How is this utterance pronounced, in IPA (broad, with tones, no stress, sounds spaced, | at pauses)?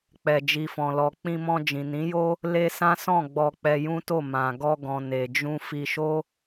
k͡p ɛ˨ d͡ʒ i˨ f ɔ̃˨ l ɔ˨ k͡p ĩ˧ m ɔ̃˧ d͡ʒ ĩ˨ n ĩ˨˦ j o˦ | l e˧ s ã˦ s ɔ̃˦˨ ɡ͡b ɔ˧ k͡p ɛ˧ j ũ˦ t o˦˨ m ã˨ ɡ ɔ˧ ɡ ɔ̃˨ n e˨ d͡ʒ ũ˧ f i˧ ʃ o˦